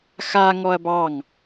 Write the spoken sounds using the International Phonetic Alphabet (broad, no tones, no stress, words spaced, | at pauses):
xa ŋɔɐ̯bɑŋ